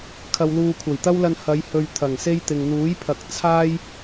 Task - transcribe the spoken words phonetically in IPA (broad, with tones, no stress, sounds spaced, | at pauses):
kʰ ɐ˧ w l uː˧ kʷʰ ɐ˨˩ j t̪ ɐ˥ w l ɐ˧ n h ɐ˨˧ j h ɵ˨ ɥ t̪ʰ ɐ˨˩ ŋ s e˥ j t̪ ɪ˨ ŋ n̪ uː˨˥ j pʰ ɐ˨ k̚ t͡sʰ aː˥ j